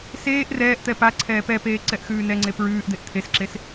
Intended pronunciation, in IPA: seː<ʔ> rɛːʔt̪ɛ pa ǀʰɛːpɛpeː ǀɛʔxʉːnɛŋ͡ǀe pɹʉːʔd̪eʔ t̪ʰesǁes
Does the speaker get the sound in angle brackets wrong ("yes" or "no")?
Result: no